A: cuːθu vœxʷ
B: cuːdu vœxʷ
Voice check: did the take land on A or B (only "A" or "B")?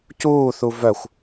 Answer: A